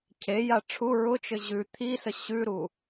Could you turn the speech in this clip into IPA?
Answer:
cʰ e j a ʈ͡ʂʰ u ɹ ʊ t͡ʃ ɘ ʑ ʉ t̪ʰ i s ə ɕ ʉ ɾ u

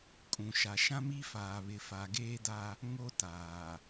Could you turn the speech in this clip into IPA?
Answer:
kʼ ũ˨ ʃ a˨ ʃ ã˦ m i˦ f aː˨ β ɪ˨ f a˨ ɡ eː˦ d a˦ | ŋ o˦ t aː˨

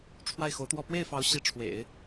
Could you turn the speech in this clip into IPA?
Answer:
ʈ͡ʂʰ w a˥˩ ɪ̯ x o˧˥ ʊ̯ t̪ w ɔ˥˧ p w e˥˩ ɪ̯ f ɑ˧˥ ʊ̯ ɕ i˧˥ ʈ͡ʂʰ w ḛ˨˩˦ ɪ̯

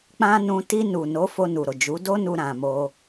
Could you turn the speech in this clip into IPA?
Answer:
k͡p ã˦ n ũ˧ t i˧ n u˨ n o˨˦ f o˧ n u˨ ɾ o˨ d͡ʒ u˨˦ d o˦ n u˧ ɾ ã˨ m o˧

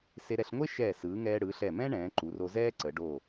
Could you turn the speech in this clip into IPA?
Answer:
s e˧ ɾ ɛ˧ ɬ ŋʷ e˥ ʃ ɛː˧˩ s ɯː˩˧ ŋ ɛː˧ ɽ ɯː˩˧ ɬ ɛ˧˩ m ɛ̃˥ ɳ ɛ̃ː˩˧ ǃ u˩˧ r o˧ z ɛː˥ ǀ ə˩˧ ɖ o˧˩

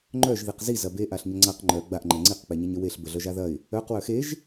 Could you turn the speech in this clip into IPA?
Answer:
ŋ͡ǃ œ ʒ ð i q z i z ɐ b e ʔ a ɬ ɲ ə ŋ͡ǀ a q ŋ͡ǃ œ ɡ͡b a ʔ ŋ͡ǃ ɛ ŋ͡ǀ i q k͡p ɛ ɲ ɛ ɲ ə w e ɬ b ə ɮ œ ʒ a ð ɐ ɪ̯ | œ q w œ x e ʒ

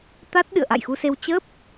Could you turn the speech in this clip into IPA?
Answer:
t̪ a˦˥ t̚ ɗ ɨ̰˧˨ ə̯ ʔ a̰˧˨ j x u˧ s e˧ w t͡ɕ ə˦˥ p̚

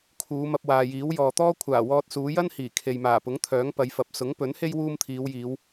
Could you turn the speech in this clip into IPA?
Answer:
kʰ uː˨˧ m ɐ˧ p̚ w aː˨ j iː˨˥ w j ɔː˨ t̪ ɔː˥ kʷʰ aː˨˩ w ɔː˧ t̚ s uː˨˧ j ɐ˥ n h iː˨˩ kʰ e˨ j m aː˨˩ p ʊ˨˥ ŋ t̪ʰ œː˨˥ ŋ p ɐ˨˧ j f ɐ˨˥ p̚ s ʊ˨˥ ŋ p ɵ˨˥ n h e˥ j w uː˥ m t̪ʰ iː˨˧ w j iː˨˧ w

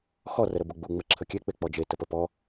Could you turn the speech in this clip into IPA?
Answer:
x ɔ r ə ɾ ə b u ɡ͡b u ŋ͡m ə ǁʰ ə kʲ e k͡p e k͡p ɔ d͡ʒ e t ə p ə p ɔ

